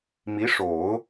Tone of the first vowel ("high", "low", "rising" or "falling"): rising